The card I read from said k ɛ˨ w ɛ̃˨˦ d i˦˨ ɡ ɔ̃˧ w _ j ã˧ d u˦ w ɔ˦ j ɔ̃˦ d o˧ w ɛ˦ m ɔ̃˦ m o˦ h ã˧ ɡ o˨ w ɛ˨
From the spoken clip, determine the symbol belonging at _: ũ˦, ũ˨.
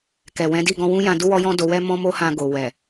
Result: ũ˦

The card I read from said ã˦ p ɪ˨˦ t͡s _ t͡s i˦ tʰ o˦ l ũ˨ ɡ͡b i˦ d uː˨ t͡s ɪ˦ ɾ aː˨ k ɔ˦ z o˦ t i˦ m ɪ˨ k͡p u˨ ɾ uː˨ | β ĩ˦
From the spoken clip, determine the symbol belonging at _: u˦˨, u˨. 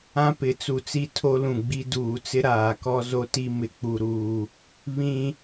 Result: u˨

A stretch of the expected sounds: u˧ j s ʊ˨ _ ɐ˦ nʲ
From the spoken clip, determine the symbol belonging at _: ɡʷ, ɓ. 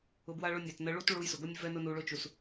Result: ɡʷ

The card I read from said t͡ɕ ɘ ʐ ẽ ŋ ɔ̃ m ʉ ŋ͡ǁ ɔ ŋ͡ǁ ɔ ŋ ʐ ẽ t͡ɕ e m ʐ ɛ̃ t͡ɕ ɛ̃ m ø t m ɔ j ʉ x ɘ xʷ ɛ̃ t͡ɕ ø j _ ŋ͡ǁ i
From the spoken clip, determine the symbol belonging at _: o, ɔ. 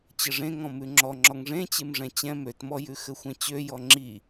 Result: ɔ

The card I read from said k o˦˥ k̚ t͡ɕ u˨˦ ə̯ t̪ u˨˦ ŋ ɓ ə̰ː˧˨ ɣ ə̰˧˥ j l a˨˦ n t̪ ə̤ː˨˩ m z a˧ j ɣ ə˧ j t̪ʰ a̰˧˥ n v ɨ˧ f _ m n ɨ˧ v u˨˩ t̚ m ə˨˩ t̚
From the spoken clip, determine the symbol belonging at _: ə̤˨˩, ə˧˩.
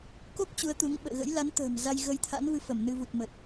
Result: ə˧˩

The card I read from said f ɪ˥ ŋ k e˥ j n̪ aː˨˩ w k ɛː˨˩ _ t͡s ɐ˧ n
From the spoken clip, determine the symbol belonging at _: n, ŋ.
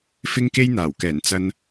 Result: n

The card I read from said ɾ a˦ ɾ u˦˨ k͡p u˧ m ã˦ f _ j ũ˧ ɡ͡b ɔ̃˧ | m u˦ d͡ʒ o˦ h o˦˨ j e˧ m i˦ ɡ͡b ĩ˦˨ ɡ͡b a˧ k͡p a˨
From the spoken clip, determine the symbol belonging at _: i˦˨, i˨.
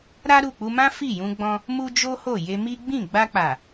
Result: i˦˨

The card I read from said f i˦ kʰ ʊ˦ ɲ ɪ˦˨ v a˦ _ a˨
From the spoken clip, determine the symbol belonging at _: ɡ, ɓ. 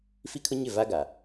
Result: ɡ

